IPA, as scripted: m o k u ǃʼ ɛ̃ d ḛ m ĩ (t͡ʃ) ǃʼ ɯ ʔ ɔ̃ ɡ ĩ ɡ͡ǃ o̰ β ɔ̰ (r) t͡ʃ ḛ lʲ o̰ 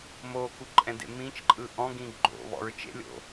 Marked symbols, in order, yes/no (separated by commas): yes, no